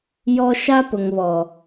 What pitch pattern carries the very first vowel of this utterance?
high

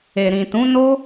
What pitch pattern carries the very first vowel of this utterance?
low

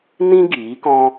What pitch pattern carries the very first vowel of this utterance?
high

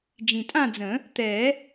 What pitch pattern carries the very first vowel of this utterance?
low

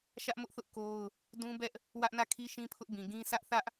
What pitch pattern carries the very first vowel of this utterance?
high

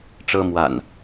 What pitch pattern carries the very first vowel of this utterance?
high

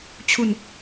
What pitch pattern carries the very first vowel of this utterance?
falling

